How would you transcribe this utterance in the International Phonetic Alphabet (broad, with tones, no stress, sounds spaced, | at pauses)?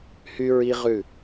h y˦ ɹ i˦ ʁ ʉ˦˨